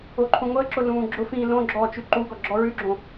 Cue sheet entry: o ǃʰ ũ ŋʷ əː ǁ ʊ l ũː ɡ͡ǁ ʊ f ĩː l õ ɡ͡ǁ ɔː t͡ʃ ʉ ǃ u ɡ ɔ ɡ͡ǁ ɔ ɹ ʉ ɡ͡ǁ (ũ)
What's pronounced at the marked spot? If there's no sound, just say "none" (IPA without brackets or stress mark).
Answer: õ